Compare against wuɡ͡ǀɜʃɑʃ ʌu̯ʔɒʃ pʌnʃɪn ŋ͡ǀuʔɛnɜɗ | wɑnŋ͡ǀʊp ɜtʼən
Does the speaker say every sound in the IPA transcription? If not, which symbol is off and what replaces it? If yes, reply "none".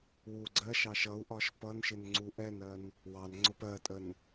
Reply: ɗ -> n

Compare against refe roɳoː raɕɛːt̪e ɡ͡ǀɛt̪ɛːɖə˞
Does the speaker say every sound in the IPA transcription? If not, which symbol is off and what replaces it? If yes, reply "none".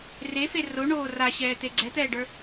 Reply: none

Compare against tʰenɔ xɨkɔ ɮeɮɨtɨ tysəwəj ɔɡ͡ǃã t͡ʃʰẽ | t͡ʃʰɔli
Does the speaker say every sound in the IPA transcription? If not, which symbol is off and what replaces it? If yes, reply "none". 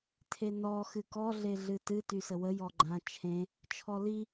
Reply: none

